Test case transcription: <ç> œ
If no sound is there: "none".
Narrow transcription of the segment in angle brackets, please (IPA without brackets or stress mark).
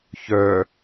ç